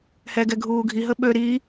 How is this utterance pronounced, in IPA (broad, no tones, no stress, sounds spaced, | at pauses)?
h ɛ ɡ ɛ ɡʱ uː ɡʱ i ɦ ə ɓ ø ɾ i